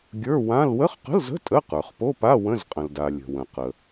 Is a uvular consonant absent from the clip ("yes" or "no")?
no